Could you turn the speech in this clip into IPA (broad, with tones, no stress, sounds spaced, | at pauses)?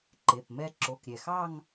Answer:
ǃ e˩˧˩ p m ɛ˥˧ ǁ o˩˧˩ k ɾʲ ɛ˩ x ɑ˥˧ ŋ